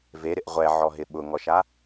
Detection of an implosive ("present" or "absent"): present